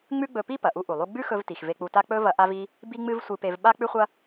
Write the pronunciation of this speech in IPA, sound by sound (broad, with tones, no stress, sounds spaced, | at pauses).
ŋ͡m ʉ˥ ɡ͡b ɵ˧ p i˥ p ɐ˩ ʔ u˧ ʔ u˩ lˠ u˧ ɡ͡b ʉ˥ x ɵ˧ v t i˩ x v e˧ k͡p u˧ t a˥ k͡p ɵ˥ v ɐ˧ ʔ a˥ v i˥ | b i˥ ŋ͡m ɨ˥ v sʷ ɨ˧ p e˧ v ɓ a˥ k͡p ʉ˥ χʷ ɐ˥